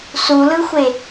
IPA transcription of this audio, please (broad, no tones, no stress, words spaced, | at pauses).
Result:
sulɯxʷe